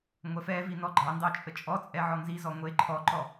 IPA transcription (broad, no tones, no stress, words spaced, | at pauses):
ŋʷɛfɛvi nɔɡ͡ǃɑndɑ t͡ʃʼət͡ʃʼɔt͡sʼɛ ʕɔnzizɔ ŋʷe ǃʰɔǃɔ